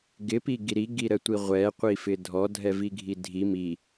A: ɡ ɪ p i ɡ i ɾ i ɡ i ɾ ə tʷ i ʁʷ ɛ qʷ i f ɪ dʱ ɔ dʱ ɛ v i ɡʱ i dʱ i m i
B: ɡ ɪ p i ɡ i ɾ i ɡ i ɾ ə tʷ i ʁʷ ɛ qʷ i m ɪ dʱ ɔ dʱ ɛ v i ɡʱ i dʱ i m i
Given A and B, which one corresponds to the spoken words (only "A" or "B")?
A